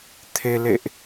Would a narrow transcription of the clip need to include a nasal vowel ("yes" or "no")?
no